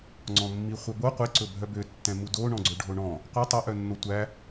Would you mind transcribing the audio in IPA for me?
ŋ͡ǀ ɔ̃ mː i χʷ œ b o qʷ i ǀ ɵ bʱ œ b ø tː ɛ̃ m u d o ɳ ɔ̃ ɡ͡ǀ ɵ ɖʱ o ɳ ɔ̃ | qʷ ɛ tˤ e ʔ œ nː o tʷ æ

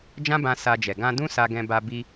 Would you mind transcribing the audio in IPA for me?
d͡ʒ ã˦ b ã˧ s a˧ d͡ʒ ɛ˨ ɡ ã˧ d ũ˦ s a˧ ɡ ɛ̃˧ b a˧ b i˧

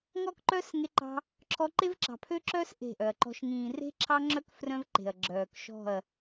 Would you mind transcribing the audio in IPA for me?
ŋ ɔ˦ k ǃ œ˦ s ŋ e˧ ǃ ɑ̤˧ | ǁʰ ɔ˧ ǃ e˦ v ǁ ɑ̤˨ pʰ ø˦ ǁ œ˦ s ʔ e̤˦˨ ʔ œ˨ ɐ̯ ǃ ɔ̤˦ ʃ ŋ ĩː˨ r e̤˦ ǁʰ ɑ˦ ŋ͡ǁ œ˦ k f r œ̃˦ v ǃ e̤˨ ɐ̯ ɡ͡ǁ œː˨ k ʃ ɔ̤˦˨ ɐ̯

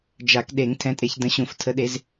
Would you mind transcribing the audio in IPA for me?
d͡ʒ a˨˩˦ k ɗ e˨˩˦ ŋ tʰ ɛ̃˨˦ tʼ e˨˦ ç d ə̃˨˦ ɕ ũ˨˩˦ f tʰ ə˨˦ ɗ e˨˦ z

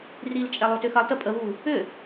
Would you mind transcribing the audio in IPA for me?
r i l t͡ʃʼ ɛ lˠ o t ʏ x ɐ lˠ t ə pʼ ə β u | ʏ

